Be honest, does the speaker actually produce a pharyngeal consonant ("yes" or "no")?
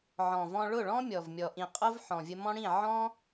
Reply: yes